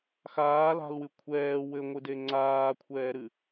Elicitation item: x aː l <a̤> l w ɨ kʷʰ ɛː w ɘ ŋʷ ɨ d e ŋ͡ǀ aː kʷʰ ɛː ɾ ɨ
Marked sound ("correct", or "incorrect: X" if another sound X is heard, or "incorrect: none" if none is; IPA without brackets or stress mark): correct